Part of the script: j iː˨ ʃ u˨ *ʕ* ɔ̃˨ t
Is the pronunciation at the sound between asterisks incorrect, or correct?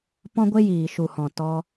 incorrect